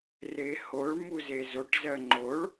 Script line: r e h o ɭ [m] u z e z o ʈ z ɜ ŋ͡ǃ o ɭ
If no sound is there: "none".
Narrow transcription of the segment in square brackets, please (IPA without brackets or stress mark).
m